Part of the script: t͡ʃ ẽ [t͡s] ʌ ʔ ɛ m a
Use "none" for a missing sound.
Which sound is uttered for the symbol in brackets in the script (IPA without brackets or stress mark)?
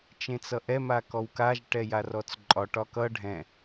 t͡s